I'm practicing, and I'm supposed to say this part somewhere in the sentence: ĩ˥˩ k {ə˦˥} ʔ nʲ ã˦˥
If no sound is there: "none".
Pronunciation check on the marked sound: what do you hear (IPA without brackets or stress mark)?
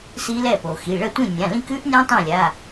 ʉ˦˥